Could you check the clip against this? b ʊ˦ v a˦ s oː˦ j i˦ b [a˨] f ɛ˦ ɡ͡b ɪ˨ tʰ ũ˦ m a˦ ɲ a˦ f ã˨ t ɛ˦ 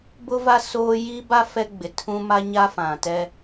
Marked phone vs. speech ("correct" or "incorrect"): incorrect